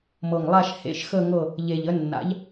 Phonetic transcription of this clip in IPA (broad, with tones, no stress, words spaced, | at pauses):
mɤ˨˩ŋlˠa˦˨ʃ hḛ˧˥˧ʃxə˦˨ŋɤ˦˨ | ʎe˨˩ʎə˨˥nːa̰˨˥ʎ